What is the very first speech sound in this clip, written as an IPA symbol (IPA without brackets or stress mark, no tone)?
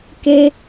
k